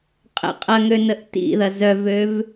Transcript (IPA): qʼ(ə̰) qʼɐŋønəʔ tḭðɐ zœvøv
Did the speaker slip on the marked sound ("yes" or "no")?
no